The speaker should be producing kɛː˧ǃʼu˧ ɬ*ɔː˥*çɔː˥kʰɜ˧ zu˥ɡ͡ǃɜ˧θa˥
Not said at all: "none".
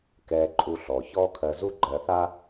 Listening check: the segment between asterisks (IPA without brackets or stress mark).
ɔː˩